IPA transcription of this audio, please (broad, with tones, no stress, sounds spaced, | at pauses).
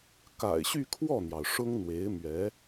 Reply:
k a̰˨˩ ɪ̯ ɕ y˥˧ kʰ w ɔ˥˩ n̪ j ɑ˩ ʊ̯ ʂ ʊ˥ ŋ n̪ w e˧˥ ɪ̯ m ɥ ɛ˧˥